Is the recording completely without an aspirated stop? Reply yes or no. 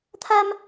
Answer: no